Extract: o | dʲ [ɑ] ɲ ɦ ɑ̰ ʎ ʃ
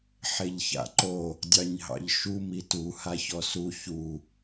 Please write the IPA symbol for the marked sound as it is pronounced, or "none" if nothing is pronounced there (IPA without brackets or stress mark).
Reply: ɑ